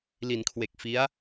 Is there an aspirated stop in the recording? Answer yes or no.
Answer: yes